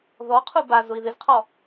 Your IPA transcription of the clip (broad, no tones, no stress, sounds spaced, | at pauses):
ð ɔ qʰ u b a z ʊ i̯ ð ɪ z qʰ ɔ